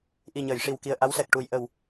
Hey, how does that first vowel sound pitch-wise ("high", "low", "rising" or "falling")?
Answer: low